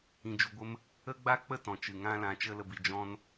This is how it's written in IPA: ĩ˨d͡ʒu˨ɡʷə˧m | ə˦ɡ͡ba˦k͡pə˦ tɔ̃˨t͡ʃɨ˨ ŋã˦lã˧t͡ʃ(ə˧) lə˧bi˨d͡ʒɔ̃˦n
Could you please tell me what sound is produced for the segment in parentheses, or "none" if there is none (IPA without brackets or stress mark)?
ə˦